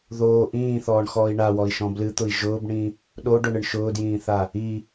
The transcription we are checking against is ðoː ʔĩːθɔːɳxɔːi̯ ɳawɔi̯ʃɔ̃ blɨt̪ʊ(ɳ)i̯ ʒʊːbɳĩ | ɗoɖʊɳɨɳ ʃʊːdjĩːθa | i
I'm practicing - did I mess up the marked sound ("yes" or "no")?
yes